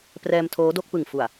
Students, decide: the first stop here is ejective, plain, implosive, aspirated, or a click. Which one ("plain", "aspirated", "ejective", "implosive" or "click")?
plain